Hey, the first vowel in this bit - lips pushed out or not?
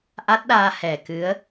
no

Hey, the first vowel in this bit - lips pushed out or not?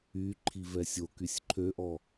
yes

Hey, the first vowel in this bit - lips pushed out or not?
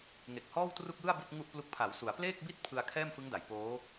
no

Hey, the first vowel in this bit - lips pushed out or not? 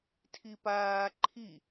no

